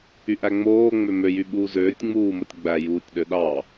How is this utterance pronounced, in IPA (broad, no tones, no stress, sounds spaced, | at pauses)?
y ʔ æ ŋ͡m oː ŋ͡m ø m ø j y ɓ uː z øː tʲ ŋ͡m uː m o tʲ ɡ͡b æ j uː tʲ ɗ ø ɗ ɑ